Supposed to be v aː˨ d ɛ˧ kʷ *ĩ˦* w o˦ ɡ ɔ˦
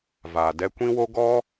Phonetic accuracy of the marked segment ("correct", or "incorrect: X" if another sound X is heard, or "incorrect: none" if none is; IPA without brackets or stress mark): correct